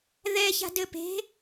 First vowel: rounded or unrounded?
unrounded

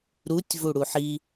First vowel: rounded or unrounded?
rounded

